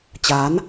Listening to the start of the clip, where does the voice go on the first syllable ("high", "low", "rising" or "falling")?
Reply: rising